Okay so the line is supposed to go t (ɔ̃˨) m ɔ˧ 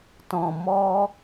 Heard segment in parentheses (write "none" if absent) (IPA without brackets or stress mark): ɔ̃˨